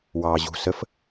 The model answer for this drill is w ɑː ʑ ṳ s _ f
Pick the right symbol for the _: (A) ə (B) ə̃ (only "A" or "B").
A